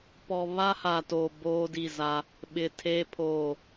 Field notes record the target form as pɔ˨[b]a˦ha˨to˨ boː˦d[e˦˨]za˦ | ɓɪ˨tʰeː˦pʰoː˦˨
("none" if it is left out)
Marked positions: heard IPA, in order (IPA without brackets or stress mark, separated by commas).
β, i˦˨